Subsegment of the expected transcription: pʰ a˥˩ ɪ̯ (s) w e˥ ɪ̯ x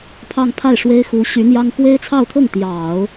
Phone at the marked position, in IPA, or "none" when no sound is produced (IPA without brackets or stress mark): ʂ